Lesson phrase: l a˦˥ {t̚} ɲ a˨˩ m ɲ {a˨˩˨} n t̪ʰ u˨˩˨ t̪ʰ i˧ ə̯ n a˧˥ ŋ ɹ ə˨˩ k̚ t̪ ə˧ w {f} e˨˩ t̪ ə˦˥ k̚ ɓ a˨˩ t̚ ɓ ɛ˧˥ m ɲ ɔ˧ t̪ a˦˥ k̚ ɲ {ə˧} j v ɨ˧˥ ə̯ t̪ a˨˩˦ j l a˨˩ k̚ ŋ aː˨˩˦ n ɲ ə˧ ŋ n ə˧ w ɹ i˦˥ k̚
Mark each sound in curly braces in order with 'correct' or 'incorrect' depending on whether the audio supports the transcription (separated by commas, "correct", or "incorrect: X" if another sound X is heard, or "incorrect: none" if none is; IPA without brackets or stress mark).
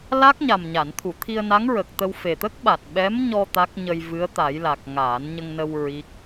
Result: incorrect: k̚, correct, correct, correct